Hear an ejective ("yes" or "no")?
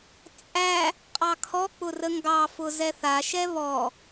yes